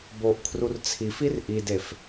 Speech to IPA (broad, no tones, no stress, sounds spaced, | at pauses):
b o ʔ kʰ r u r t͡sʰ i f i r ʔ i d e f